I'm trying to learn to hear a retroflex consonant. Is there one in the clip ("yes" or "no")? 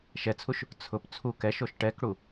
yes